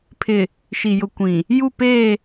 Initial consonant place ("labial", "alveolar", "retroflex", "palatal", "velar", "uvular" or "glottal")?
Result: labial